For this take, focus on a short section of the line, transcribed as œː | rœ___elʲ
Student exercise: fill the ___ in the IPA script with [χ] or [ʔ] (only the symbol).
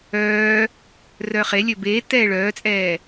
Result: χ